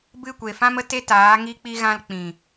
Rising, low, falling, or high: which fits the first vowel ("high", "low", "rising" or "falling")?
falling